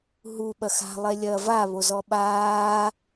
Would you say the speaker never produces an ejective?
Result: yes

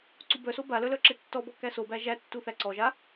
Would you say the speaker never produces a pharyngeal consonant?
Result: yes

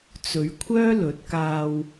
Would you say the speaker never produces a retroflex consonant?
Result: yes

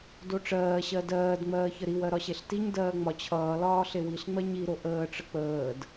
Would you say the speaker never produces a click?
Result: yes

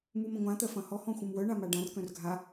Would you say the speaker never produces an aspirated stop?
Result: yes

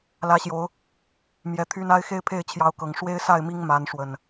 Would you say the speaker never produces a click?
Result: yes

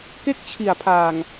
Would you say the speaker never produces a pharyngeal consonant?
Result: yes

